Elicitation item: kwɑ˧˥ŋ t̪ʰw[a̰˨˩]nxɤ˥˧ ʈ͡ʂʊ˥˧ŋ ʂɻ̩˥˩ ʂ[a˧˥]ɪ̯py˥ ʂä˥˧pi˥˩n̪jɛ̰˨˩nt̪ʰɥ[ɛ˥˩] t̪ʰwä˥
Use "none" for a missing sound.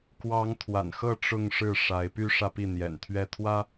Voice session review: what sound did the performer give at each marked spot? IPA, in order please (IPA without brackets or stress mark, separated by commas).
a̰˨˩, a˧˥, ɛ˥˩